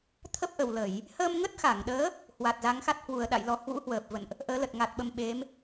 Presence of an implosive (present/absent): present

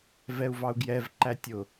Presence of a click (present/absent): present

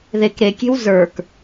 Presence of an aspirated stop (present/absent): absent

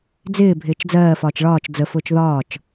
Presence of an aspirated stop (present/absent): absent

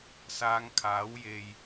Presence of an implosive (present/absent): absent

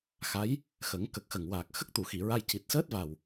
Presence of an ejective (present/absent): absent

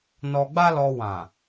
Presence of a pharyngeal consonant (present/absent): absent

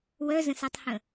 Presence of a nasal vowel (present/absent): present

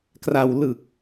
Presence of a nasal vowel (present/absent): absent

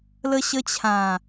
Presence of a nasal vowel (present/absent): present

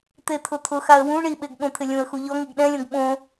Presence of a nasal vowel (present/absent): present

